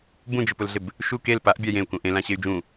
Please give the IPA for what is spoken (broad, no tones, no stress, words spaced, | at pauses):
bũd͡ʒɪpʊlɮɪb | ʃu kel paʔbʲa jẽu̯kũ ʔẽlãɕey̯ d͡ʒũ